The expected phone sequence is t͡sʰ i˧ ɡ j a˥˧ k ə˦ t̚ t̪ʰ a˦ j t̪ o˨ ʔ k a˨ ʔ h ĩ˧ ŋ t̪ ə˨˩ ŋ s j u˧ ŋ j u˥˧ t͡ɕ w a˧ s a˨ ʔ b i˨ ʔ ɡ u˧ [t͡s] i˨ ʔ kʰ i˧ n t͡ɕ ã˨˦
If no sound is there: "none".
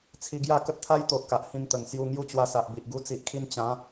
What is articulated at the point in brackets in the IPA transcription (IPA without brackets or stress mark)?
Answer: t͡s